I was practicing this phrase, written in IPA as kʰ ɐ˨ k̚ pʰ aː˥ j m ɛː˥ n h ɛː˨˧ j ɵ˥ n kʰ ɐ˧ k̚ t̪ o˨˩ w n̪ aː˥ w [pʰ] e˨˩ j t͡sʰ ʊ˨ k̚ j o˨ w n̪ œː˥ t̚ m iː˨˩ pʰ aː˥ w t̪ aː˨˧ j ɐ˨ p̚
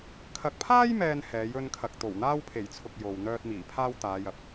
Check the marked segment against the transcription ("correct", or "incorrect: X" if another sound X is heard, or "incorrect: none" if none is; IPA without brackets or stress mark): correct